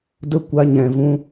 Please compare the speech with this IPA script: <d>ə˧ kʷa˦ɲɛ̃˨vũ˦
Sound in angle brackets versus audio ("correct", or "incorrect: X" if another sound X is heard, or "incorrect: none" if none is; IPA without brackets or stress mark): correct